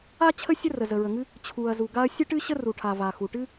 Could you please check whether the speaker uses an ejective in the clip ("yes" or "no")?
no